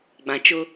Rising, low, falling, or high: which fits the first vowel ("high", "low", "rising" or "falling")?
low